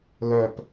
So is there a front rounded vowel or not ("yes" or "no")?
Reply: yes